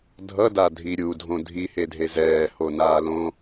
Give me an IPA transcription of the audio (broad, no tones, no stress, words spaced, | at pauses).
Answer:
dʱʌdadʱi ɾʲudʱõ dʱihedʱe zɛːhonaːlõ